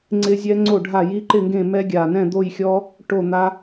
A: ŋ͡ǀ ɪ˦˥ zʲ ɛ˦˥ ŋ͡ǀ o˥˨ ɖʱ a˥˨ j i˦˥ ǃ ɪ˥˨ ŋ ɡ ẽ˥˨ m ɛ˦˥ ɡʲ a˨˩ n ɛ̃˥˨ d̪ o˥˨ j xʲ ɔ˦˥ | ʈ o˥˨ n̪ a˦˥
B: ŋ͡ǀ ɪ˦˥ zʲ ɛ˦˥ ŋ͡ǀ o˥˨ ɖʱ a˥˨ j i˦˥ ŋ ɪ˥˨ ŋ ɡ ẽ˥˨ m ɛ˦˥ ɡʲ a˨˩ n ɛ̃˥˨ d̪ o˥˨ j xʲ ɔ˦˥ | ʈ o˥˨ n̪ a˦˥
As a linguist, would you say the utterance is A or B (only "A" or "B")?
A